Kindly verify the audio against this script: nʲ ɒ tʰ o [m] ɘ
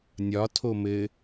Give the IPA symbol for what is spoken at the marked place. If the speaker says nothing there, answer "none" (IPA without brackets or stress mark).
m